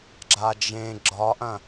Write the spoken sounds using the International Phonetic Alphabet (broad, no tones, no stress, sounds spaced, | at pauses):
ɡ͡ǁ a d͡ʒ ẽ ɡ͡ǁ ɒ ʔ ɐ̃